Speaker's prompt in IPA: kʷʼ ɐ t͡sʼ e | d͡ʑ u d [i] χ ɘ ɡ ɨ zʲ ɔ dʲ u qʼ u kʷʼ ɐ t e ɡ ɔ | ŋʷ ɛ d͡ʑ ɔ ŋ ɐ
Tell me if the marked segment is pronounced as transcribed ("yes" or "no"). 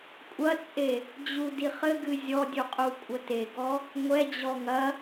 yes